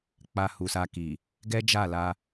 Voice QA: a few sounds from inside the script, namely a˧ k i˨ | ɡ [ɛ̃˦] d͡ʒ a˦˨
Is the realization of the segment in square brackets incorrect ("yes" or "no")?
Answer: yes